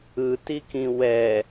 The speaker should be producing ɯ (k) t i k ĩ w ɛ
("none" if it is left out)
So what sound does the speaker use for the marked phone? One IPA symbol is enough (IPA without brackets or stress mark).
none